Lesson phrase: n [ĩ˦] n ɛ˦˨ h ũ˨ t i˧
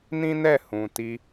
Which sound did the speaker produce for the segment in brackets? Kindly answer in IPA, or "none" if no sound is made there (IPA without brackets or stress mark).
ĩ˦